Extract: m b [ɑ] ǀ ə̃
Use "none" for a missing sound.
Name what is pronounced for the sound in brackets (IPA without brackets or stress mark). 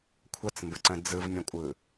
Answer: ə